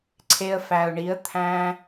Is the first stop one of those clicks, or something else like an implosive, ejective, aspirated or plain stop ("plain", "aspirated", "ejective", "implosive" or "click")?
click